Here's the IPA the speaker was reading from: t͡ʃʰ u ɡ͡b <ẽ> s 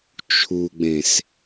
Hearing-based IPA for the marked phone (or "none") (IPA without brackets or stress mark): ẽ